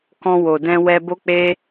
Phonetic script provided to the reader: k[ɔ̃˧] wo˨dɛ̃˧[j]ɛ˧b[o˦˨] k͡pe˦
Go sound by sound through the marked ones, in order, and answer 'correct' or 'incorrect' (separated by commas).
correct, incorrect, incorrect